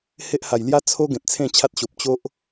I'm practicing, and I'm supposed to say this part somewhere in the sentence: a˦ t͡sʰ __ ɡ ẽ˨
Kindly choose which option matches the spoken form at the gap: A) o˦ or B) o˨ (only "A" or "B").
A